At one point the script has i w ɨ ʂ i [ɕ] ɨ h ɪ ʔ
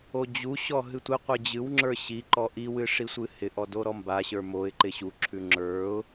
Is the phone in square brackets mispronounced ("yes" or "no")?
yes